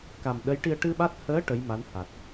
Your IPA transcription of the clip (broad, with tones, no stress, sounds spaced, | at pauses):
k a˨˩ m ɗ ə˧˥ j ʈ i˧ ə̯ ʈ ɨ˧ ɓ a˦˥ t̚ h əː˧˥ ʈ ə˧˥ j m a˧˥ n h a˨˩ t̚